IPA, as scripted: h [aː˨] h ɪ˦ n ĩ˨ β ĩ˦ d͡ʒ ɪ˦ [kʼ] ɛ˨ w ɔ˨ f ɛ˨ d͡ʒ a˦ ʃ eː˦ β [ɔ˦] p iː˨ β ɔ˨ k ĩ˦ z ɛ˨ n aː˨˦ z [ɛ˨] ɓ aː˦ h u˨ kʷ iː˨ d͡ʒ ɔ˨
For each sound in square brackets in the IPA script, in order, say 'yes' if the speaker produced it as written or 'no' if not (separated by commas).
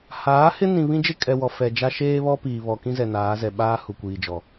no, yes, yes, yes